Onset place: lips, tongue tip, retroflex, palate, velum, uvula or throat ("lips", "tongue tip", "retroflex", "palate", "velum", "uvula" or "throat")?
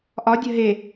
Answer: throat